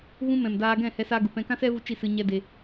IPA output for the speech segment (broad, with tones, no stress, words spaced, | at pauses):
ɣũ˧mɛ̃˨m daː˧ɡɛ̃˦˨hɛ˧sa˧ ɡu˨pɛ̃˧kã˦ sɛ˦vu˧ t͡ʃi˦˨sɨ˧ ɲɛ˦de˧